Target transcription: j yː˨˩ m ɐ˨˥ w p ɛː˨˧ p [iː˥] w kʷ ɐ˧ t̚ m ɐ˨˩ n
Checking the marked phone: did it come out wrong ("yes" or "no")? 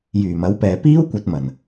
no